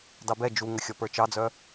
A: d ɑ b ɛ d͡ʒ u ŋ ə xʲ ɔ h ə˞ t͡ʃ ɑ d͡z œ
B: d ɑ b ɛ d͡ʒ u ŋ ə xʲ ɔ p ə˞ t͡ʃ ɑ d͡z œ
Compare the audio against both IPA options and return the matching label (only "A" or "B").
B